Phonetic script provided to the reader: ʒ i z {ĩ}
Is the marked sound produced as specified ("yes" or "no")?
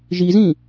yes